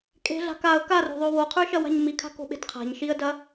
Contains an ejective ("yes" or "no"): yes